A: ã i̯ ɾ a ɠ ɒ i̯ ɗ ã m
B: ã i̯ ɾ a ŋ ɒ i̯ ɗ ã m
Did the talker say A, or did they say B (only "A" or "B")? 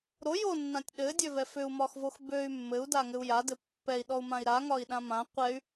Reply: B